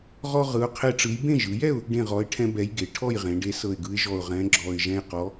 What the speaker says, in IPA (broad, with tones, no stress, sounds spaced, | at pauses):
ʁ ɔ˦ ʁ ɯ˨˥ ʊ̯ qʰ e˦ ʈ͡ʂ ɯ˨˥ j b ẽ˥˨ ʒ ɯ˩˧ j ɛ˥˨ ʊ̯ | ɖ ẽ˥˨ ʁ ɔ˨˥ ɪ̯ ʈʰ ɛ̃˦ b ɛ˨˥ j ɡ e˩˧ ʈʰ ɔ˥˨ j ʁ ẽ˩˧ ɖ e˨˥ s ɤ˧˩ ɪ̯ ɡ ɯ˨˥ ɪ̯ ʒ ɔ˧˩ ʊ̯ ʁ ɛ̃˨˥ ɡ͡ǁ ɔ˧˩ ɪ̯ ʒ ɛ̃˦ j q ɔ˨˥